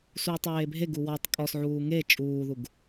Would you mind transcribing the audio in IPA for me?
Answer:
s uː tˤ eː bʱ e ɡ u w ɔ tˤ kʼ ɔ s ʕ uː ŋ e t͡ʃʼ uː ð u ɡ

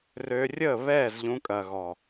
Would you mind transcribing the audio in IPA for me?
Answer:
r ø˧ rʲ ə˦˨ β ɛː˦˨ z ʎ ũ˧ kʼ ɐ˨ ɣ ɔ˨

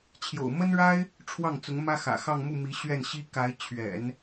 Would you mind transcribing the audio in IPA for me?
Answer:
t͡ɕʰ j o̰˨˩ ʊ̯ m ə˥ n ɻ a˥ ɪ̯ | ʈ͡ʂʰ w ɑ˥˩ ŋ t͡s ʊ˧˥ ŋ m ä˥ x ä̰˨˩ x ɑ˥˧ ŋ m u˥˩ m i˧˥ ɕ ɥ ɛ˥˩ n ɕ i˥ k a˧˥ ɪ̯ t͡ɕʰ ɥ ɛ̰˨˩˦ n

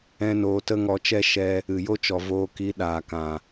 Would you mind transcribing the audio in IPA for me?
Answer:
ɛ̃˦ n oː˧ t ə˦ ŋ ɔ˧ t͡ʃ ɛ˦ ʃ ɛ˧ | ɨ˨ j o˦ t͡ʃ ɔ˨ v oː˧ k i˨˦ ɗ aː˨ k ã˨

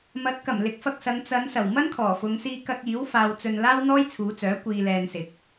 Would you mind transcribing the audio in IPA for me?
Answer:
m ɐ˨˥ t̚ k ɐ˨˩ m l ɪ˨˥ k̚ f ɐ˧ k̚ s ɐ˨˧ ŋ t͡s ɐ˨˧ n s ɐ˨˩ w m ɐ˥ n kʰ ɔː˨˩ f ʊ˨˧ ŋ s iː˧ k ɐ˧ k̚ iː˨˥ w f aː˧ w t͡s ɵ˧ n l aː˥ w n̪ ɔː˥ j t͡sʰ uː˨˧ t͡s œː˨˥ kʷ iː˧ l ɛː˧ n s ɪ˨˥ k̚

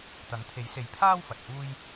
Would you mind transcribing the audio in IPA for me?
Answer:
t̪ ɐ˨˥ ŋ t̪ʰ e˨˥ j s e˨˧ j pʰ aː˥ w f ɐ˨ t̚ h uː˥ j

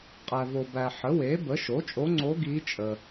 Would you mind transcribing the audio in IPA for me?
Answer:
qʼ æ˨ v o˨ b æ˨ ħ ə˩˥ w e˩˥ b ə˩˥ ʃ o˩˥ t͡ʃʼ o˧˥ ŋ͡ǀ o˧˥ ɡ i˧˥ t͡ʃʼ ə˨

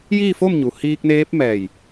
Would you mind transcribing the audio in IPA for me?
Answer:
j iː˥˨ f o˥˨ m ɲ u˩ h iː˧ k̚ n eː˧˥ p̚ m ɛː˧˩ j

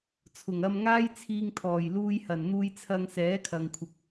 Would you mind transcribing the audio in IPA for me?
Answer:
t͡sʰ ʊ˨˩ ŋ ɐ˧ m ŋ aː˥ j t͡sʰ iː˧ ŋ t̪ʰ ɔː˨˩ j l uː˧ j h ɐ˨˩ n n̪ uː˧ j t͡sʰ ɐ˧ ŋ s ɛː˨˥ kʰ ɐ˨ ŋ kʷʰ ɪ˨ k̚

